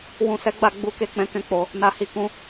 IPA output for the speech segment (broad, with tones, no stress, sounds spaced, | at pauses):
w ũ˨ s ɛ˨˦ ɡ͡b a˦˨ ɡ͡b u˧ k e˧ k͡p ɛ̃˧ k ɛ̃˦ k͡p o˧ | n a˨ h i˨ k ũ˧